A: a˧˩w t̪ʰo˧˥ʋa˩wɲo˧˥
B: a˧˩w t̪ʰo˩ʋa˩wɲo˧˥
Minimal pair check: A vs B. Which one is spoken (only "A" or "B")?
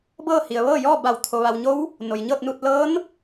B